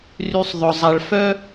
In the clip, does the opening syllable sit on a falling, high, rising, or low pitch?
low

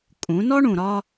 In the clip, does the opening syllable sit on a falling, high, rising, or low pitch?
rising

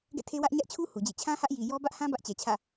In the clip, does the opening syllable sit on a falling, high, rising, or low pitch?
falling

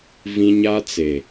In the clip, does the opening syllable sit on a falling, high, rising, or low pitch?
high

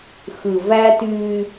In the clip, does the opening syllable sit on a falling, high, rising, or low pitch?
low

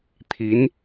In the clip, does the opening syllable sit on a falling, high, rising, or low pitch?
rising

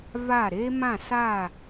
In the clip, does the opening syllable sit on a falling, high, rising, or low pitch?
falling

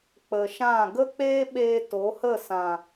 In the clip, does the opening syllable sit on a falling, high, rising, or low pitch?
low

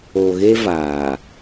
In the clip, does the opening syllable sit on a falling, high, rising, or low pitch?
low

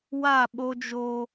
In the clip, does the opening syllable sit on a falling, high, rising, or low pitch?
falling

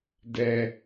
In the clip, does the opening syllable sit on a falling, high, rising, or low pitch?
low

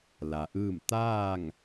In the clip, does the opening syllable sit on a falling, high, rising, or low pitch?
low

